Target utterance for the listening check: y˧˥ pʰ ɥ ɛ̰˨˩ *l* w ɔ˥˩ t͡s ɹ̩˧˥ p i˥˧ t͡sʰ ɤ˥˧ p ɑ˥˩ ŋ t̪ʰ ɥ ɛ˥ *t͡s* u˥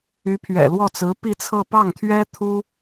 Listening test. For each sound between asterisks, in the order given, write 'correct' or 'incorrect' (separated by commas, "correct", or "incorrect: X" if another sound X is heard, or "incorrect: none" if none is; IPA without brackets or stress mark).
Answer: correct, incorrect: t̪ʰ